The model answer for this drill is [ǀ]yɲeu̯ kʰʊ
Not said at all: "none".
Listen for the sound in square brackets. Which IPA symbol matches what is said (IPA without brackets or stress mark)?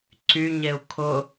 ǀ